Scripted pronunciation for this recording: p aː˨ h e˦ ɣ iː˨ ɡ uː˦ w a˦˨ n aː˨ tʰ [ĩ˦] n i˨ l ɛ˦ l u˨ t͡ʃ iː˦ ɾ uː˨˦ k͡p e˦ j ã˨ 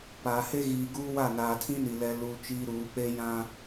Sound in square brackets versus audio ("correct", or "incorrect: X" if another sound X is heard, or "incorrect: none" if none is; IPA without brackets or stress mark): correct